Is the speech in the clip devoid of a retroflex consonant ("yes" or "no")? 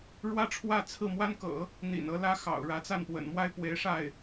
no